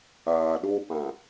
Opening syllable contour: low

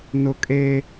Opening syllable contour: high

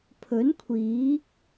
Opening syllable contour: rising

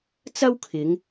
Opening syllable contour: high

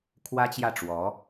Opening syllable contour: high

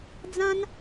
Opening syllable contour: high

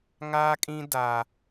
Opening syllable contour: high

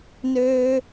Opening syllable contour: high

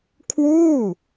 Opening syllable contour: falling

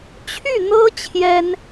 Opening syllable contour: falling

